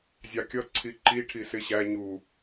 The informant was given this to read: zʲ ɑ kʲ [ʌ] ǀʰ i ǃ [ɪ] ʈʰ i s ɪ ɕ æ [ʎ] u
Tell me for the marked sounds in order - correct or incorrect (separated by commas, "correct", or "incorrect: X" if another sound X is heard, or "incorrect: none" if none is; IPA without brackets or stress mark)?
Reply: correct, incorrect: i, incorrect: ɲ